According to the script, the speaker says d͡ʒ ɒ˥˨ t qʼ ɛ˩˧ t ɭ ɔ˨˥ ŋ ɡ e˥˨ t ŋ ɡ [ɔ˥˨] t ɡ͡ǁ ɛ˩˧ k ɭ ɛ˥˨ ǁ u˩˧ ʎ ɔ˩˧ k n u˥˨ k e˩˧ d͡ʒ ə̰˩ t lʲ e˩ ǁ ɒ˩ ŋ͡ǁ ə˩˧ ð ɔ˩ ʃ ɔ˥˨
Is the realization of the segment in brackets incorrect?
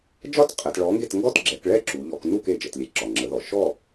no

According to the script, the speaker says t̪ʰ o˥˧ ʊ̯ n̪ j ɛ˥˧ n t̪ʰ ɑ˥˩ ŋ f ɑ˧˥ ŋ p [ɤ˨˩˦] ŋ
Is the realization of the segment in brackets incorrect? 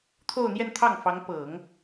no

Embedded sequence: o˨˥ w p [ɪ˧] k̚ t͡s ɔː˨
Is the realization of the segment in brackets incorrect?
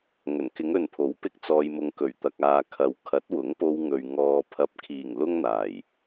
no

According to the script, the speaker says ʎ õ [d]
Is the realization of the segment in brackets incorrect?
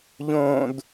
no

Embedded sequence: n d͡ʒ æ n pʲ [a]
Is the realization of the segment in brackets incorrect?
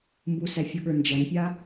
no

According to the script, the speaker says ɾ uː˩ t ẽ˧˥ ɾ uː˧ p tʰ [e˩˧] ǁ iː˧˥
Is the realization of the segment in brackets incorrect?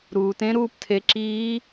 no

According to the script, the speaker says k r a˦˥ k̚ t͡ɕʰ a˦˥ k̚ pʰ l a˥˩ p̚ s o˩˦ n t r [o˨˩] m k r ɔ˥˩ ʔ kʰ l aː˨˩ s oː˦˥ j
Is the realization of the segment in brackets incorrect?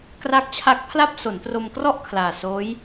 yes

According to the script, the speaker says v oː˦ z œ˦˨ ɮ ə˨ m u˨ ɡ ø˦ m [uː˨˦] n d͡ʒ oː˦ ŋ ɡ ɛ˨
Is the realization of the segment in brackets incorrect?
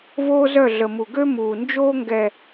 yes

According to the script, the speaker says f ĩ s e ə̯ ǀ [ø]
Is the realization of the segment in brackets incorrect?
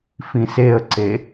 yes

